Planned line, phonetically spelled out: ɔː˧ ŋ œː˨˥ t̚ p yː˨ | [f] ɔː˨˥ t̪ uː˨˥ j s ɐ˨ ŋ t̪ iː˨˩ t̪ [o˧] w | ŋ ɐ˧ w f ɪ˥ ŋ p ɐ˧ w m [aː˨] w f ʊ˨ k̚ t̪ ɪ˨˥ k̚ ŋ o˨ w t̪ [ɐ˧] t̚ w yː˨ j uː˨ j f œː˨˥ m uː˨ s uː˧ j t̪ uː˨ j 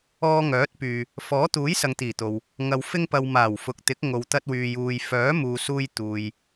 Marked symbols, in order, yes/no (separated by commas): yes, no, no, yes